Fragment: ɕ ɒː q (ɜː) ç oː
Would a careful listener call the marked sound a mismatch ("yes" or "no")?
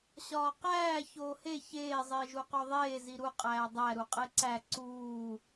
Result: yes